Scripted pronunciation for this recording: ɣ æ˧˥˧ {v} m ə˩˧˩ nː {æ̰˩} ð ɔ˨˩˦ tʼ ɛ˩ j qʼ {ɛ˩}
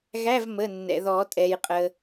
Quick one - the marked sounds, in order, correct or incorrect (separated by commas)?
correct, incorrect, incorrect